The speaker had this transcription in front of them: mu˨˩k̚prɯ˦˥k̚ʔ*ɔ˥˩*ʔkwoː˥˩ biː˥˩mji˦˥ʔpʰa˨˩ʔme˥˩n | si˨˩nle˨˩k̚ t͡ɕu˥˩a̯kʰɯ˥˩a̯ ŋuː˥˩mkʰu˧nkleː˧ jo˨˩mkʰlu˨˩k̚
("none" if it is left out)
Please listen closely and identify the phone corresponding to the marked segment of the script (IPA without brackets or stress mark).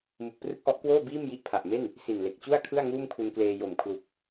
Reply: ɔ˦˥